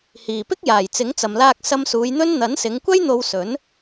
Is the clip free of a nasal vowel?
yes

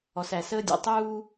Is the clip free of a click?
yes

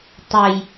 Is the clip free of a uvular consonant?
yes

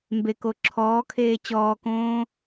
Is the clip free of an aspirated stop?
no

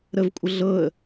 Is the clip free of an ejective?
no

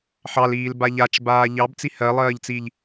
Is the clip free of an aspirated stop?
yes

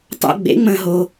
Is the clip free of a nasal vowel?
no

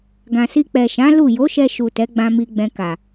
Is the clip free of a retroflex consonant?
yes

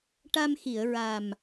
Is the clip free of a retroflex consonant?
no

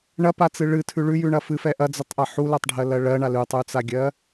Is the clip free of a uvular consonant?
yes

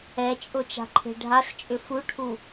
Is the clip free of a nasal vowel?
yes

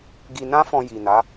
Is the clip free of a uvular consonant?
yes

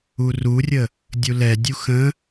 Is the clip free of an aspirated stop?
yes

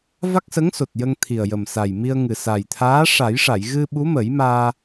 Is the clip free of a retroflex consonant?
no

